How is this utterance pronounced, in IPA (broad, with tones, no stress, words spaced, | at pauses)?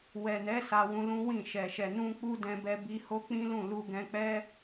wɛ˨nɛ˨˦ sa˧wũ˧lũ˦wĩ˦˨ ʃɛ˨ʃɛ˨ nũ˧ k͡pu˦dɛ̃˧bɛ˧ bi˧ho˦k͡pĩ˦lũ˦˨ lu˧ɡɛ̃˧k͡pɛ˦